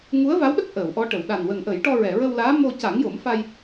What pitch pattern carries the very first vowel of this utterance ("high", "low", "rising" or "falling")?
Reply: rising